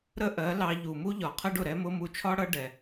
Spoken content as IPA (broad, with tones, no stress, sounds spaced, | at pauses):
ɾ ə˦ ʔ ɜ˨˦ l ɑ˧ ʎ u˨ m u˦ ʎ ɒ˨ qʰ ɜ˦ ɖ ʊ˨ ɾ ɛ˧ m ʊ˧ m u˧ t͡ʃʰ ɒ˦ ɽ ʌ˦ ɖ ɛ˨